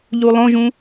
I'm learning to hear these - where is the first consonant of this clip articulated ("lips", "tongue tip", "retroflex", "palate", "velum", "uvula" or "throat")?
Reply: palate